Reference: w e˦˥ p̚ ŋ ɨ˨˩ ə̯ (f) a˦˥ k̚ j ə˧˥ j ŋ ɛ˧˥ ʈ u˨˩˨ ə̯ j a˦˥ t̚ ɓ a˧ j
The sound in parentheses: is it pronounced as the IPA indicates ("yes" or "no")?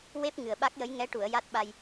no